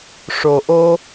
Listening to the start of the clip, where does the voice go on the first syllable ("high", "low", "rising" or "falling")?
low